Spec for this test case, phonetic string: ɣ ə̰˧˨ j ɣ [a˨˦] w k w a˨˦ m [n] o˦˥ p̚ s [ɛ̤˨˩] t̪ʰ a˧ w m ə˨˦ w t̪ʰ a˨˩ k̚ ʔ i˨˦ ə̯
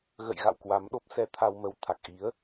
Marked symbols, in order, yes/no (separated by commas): no, no, no